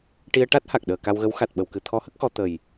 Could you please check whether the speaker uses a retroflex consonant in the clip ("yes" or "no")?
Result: yes